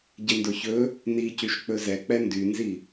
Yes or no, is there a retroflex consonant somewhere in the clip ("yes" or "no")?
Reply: no